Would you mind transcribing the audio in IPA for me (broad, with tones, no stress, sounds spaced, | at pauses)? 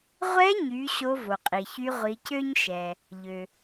ʁʷ ɛ˧˥ ɲ y˩˧ ɕ o˧˥ v o˩ qʼ i˩ ç y˧˥ ʁʷ i˩˧ c ø˥ ɲ ʃ ɛ˩ | ʎ ø˩